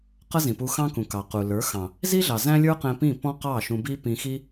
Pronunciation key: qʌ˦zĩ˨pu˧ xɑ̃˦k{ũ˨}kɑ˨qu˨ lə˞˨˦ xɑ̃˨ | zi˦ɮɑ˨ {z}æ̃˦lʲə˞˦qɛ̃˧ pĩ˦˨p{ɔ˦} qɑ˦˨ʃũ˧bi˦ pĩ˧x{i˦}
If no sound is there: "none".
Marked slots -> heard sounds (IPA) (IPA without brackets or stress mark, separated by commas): ũ˨, z, ɔ̃˦, i˦